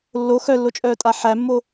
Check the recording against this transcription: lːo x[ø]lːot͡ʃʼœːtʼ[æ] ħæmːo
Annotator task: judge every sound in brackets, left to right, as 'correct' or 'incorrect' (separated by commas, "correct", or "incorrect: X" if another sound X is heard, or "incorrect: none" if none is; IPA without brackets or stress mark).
incorrect: œ, incorrect: a